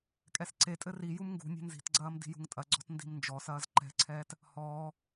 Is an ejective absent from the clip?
no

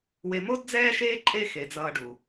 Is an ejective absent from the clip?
no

